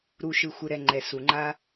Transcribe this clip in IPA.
ɾ u˨ ʃ ɯ˨ xʷ ɯ˨ ɾ ɛ˨ ŋ͡ǃ ɛ˨ s u˨ ŋ͡ǃ a˦

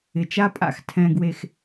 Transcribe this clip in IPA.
ɪ˨ t͡ʃ a˦ pʼ a̰˧ x tʰ ɛ̃˨ ɡ w e˨ x

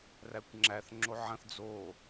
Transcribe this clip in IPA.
r æ kʷ ŋ͡ǁ æ θ ŋ͡ǁ o ʕ ɐ̃ θ d͡z o

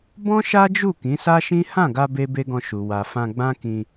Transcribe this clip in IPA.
b ɔ̃˦ ʃ a˦ d͡ʒ u˦˨ k ĩ˨˦ s a˦ ʃ ĩ˦ h ã˦˨ ɡ a˧ b e˦ b e˦ ɡ ɔ̃˧ ʃ u˨ w a˨ f ã˧ ɡ͡b ã˦ k ĩ˧

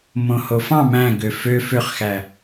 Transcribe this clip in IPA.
m õ h o f ɑ̃ m æ̃ ɡ ø f ø f ø χ x æ

